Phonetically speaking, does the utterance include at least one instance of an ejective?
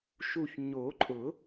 yes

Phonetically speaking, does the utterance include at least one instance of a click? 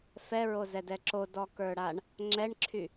yes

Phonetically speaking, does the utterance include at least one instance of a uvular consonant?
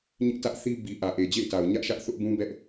no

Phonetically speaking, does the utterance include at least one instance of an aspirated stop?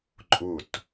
no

